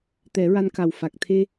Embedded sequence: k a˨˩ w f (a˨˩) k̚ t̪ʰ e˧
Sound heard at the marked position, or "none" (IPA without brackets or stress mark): a˨˩